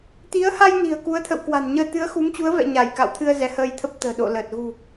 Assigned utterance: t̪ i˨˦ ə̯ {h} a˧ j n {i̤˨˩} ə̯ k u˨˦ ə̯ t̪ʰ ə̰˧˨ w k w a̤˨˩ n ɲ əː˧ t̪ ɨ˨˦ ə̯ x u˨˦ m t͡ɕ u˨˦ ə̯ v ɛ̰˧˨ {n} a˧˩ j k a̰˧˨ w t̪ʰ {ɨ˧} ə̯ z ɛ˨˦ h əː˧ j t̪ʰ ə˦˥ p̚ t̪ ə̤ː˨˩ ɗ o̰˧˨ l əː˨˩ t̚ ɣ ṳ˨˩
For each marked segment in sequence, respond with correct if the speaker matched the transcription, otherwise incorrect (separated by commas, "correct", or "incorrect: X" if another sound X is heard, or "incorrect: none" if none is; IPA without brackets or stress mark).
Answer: correct, correct, incorrect: ɲ, correct